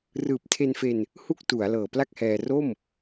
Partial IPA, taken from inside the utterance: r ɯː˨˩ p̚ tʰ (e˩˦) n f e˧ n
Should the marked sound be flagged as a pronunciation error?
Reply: yes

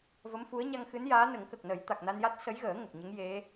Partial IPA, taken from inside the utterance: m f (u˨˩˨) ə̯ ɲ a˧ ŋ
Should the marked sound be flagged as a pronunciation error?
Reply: yes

